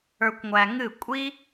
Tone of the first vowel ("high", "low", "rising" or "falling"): low